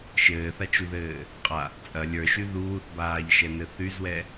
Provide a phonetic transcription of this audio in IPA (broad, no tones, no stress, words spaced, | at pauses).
ʃɘːθat͡ʃuðɘː | qʼa | t͡sʼɐ lʲə˞ʃy ðuːθbaːʎʃɛnɘ θyzwɛ